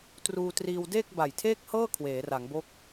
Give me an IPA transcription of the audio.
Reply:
t r uː˧ t r iː˧ w d eː˥˩ k̚ b a˨˩ j tʰ eː˥˩ k̚ h ɤː˥˩ kʰ w eː˩˦ r a˩˦ ŋ b o˦˥ k̚

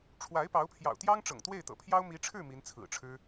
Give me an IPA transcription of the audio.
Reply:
ʈ͡ʂʰ w a˧˥ ɪ̯ p ɑ˧˥ ʊ̯ pʰ j ɑ̰˨˩ ʊ̯ t̪ j ɑ˥ ŋ ʈ͡ʂ ɤ̰˨˩ ŋ t̪ w e˥˩ ɪ̯ t̪ ɤ̰˨˩ pʰ j ɑ˥ ʊ̯ m i˧˥ ʈ͡ʂʰ ɻ̩˥˩ m i˧˥ n t͡sʰ ɹ̩˨˩ ʈ͡ʂʰ ɻ̩˥

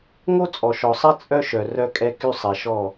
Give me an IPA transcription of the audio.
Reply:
ŋ o˦ t͡sʼ ɔ˨ ʃ ɔ˨ sˤ ɛ˦ t͡sʼ œ˦ ʃ œ˨ r œ˦ kʼ ɛ˦ k y˦ sˤ ɛ˨ ʃ ɔ˦˨

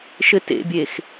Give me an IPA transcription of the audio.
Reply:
ʃ ɘ t ḛ bʲ e x

